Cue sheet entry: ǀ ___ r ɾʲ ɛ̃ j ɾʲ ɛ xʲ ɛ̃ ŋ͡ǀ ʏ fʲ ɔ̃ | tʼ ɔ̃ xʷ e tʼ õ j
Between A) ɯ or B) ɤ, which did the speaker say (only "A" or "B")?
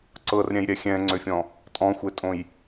B